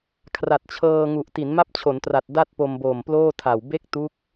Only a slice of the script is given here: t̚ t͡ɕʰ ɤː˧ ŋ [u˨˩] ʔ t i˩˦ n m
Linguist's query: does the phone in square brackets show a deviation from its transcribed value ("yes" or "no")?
no